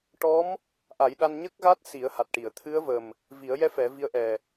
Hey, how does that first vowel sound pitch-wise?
rising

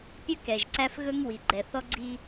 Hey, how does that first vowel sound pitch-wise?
high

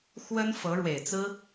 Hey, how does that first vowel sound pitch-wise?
high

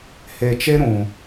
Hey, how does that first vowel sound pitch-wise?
low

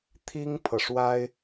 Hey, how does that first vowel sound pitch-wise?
high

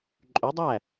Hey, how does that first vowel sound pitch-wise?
rising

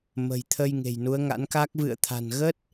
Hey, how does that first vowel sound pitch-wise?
low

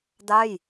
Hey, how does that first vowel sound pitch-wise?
falling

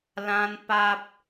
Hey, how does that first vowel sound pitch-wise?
high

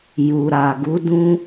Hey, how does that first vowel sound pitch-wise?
low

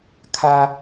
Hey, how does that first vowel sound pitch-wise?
high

